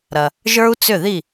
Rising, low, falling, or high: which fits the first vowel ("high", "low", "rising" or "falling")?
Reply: low